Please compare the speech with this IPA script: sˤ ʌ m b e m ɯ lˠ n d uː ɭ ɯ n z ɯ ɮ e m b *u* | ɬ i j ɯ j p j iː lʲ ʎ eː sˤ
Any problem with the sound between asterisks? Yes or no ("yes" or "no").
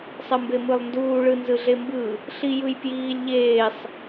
yes